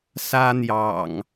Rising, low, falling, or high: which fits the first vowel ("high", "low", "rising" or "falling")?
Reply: high